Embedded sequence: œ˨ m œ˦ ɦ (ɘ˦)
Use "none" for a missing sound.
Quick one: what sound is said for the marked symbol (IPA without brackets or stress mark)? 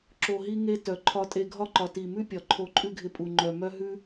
ʉ˦